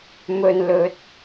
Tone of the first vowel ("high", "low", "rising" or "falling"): low